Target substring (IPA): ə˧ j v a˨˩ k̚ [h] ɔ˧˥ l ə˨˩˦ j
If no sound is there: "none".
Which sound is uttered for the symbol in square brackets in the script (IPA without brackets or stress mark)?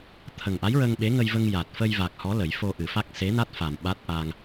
h